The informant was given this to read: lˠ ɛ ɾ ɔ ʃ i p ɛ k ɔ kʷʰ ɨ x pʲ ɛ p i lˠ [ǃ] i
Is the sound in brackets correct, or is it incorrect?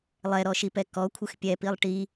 incorrect